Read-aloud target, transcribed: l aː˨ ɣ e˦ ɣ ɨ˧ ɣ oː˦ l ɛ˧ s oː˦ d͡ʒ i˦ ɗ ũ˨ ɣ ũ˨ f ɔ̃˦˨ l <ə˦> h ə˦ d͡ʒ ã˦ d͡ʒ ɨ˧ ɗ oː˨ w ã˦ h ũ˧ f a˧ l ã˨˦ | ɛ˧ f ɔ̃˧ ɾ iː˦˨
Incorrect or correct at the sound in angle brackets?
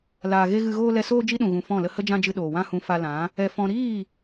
correct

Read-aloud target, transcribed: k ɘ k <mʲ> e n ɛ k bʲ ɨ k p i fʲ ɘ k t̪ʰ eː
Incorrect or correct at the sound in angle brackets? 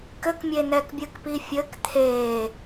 correct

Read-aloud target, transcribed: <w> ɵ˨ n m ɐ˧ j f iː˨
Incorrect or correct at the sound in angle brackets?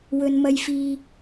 correct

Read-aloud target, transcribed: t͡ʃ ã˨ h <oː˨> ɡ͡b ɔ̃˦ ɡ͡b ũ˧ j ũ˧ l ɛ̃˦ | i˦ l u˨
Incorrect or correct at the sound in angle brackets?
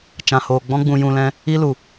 correct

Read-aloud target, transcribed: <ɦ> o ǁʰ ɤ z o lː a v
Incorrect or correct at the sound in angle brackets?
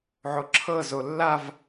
incorrect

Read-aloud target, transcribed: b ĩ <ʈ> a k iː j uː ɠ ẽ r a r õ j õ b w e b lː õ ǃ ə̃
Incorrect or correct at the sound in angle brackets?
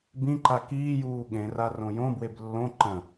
incorrect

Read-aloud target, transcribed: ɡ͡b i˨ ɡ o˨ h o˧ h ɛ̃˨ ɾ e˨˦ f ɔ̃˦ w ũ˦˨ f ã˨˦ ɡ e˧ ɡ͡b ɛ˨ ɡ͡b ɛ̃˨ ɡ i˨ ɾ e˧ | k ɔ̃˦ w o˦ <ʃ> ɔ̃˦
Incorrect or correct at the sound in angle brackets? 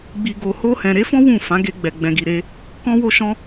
correct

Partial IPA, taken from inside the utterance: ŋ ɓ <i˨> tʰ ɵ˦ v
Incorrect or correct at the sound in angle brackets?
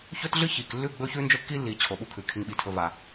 correct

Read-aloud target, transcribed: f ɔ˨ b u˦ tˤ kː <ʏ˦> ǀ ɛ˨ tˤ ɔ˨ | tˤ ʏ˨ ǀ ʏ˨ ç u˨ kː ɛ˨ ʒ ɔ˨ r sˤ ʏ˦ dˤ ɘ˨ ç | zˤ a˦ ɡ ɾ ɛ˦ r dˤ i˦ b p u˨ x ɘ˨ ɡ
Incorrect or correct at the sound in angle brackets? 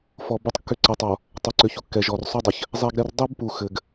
correct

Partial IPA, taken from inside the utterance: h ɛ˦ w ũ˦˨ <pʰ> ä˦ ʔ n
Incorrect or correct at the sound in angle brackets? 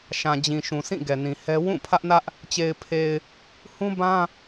correct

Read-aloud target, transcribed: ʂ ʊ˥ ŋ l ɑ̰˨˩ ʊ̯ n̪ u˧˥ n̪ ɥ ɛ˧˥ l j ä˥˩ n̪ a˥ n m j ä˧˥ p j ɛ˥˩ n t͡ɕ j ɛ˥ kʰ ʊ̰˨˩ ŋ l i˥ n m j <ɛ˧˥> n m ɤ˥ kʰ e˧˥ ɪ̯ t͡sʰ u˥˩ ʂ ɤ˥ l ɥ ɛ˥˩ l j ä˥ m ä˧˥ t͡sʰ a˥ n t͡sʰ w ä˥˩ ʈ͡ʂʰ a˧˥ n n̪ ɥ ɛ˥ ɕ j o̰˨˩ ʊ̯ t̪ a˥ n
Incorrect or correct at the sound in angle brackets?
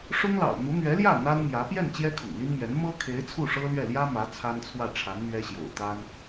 correct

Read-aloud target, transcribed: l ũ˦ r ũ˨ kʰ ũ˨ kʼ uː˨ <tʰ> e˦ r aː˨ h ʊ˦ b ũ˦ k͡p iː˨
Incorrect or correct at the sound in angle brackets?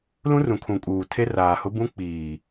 correct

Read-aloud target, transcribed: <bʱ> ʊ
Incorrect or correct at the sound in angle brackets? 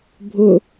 correct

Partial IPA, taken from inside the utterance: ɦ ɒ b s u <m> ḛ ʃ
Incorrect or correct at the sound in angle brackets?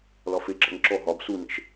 incorrect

